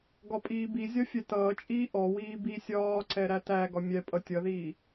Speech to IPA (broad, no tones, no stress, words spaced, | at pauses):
ɡɒpʼiːbizʲɒ fʲɛtʌːt͡ʃʼiː ʔɔwiː bisʲɒːǀɛ ɾætæɡɒ mʲɛ pʼʌtʲʌðiː